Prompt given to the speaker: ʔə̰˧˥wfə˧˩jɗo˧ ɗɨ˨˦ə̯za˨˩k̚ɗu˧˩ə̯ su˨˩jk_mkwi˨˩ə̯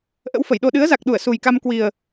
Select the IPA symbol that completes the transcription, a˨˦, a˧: a˧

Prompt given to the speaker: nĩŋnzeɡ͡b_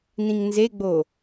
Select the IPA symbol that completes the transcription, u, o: o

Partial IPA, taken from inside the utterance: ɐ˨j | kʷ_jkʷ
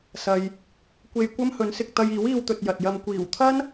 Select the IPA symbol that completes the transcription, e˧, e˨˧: e˧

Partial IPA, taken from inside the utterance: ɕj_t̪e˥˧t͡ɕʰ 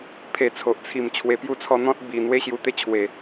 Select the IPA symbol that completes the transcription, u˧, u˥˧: u˧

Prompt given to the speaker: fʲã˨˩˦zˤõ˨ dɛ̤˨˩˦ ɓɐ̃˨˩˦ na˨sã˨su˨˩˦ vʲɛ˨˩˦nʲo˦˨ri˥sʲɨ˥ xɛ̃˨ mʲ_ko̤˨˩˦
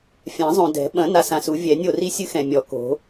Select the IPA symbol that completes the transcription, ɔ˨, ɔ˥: ɔ˨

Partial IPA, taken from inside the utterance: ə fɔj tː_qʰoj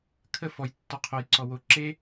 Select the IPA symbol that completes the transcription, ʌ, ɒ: ɒ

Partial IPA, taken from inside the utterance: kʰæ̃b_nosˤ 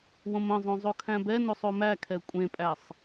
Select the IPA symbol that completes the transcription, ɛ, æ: ɛ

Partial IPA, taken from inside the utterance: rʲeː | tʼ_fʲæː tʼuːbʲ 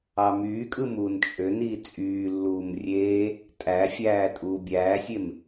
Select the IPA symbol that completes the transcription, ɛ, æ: æ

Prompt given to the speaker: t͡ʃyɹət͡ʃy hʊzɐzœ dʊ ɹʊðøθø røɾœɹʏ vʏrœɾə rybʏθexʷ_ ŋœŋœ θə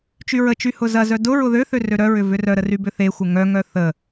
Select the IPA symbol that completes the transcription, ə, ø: ə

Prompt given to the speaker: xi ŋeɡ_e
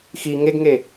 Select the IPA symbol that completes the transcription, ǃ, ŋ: ŋ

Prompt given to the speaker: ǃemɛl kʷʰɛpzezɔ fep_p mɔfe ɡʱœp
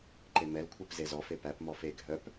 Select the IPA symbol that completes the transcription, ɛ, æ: æ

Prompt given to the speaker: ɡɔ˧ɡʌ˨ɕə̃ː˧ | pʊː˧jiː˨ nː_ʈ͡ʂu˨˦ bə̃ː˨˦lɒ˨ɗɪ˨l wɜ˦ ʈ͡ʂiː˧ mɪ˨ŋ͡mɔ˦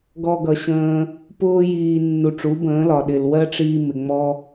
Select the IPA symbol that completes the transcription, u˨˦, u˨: u˨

